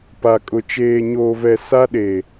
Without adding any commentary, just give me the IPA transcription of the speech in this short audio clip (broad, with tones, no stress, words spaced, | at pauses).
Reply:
pa˨ kʼʊ˨ t͡ʃeː˨ɲoː˨vɛ˨ sa˦ɗe˨